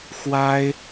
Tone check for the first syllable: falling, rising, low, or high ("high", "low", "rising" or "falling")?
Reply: high